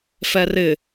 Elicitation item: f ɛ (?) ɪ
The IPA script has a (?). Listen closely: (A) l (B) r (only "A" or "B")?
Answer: B